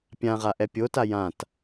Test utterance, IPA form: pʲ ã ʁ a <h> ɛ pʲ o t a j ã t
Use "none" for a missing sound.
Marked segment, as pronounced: ʔ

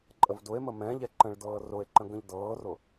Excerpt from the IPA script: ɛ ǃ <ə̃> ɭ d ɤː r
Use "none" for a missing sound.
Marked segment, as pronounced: ə̃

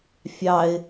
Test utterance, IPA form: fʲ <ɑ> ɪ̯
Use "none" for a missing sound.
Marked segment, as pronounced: ɑ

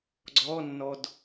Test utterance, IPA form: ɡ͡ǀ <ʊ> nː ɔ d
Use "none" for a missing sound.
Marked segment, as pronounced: ɔ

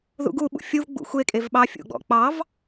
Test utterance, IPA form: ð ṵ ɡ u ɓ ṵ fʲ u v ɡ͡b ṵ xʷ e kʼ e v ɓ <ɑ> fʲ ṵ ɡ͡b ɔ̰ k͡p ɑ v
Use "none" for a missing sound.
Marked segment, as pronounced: ɑ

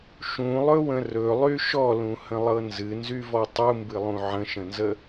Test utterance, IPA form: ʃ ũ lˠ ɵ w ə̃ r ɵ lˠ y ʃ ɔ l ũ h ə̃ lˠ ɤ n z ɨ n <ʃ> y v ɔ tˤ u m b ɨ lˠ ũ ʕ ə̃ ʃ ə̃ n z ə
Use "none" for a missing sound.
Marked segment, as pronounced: z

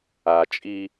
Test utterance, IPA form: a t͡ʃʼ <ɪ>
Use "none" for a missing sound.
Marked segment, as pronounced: i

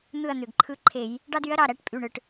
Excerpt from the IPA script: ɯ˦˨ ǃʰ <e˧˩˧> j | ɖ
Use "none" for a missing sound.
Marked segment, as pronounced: e˧˩˧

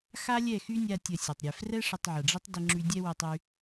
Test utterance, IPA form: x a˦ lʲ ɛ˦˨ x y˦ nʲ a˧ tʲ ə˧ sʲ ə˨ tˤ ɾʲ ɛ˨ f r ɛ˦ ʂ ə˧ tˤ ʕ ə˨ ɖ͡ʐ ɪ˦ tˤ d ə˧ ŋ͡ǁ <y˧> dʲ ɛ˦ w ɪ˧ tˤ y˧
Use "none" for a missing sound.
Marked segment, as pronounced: y˧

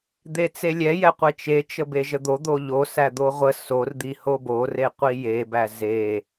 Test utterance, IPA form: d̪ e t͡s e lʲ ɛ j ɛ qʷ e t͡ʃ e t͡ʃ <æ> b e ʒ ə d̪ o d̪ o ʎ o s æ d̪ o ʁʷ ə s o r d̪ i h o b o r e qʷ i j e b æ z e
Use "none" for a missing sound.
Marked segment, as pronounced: ə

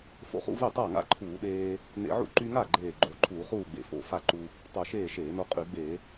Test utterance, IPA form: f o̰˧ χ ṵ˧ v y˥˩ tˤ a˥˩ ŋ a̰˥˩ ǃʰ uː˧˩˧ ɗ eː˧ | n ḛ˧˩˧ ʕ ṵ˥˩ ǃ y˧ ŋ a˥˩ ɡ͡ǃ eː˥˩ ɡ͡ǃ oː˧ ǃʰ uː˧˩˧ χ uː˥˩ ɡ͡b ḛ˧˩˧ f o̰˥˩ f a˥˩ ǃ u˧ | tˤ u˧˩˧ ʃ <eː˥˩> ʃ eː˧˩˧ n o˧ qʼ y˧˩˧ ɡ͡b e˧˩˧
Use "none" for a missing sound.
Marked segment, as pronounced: eː˥˩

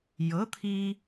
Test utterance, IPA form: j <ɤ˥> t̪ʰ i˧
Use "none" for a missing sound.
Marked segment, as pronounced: ɤ˩˥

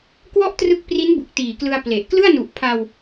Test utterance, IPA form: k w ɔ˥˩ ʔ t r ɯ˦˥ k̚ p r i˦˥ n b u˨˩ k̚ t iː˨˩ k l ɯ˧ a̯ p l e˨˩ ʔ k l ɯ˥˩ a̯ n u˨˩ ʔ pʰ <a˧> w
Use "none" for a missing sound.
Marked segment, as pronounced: a˧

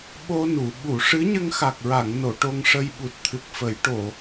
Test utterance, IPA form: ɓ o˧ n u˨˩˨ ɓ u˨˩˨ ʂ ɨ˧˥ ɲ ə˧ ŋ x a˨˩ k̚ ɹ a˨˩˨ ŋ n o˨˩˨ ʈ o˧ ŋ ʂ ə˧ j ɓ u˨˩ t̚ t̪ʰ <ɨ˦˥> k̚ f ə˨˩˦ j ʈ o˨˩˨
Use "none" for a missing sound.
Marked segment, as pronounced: ɨ˨˩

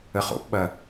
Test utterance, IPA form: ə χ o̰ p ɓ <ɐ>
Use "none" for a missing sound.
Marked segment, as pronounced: ɐ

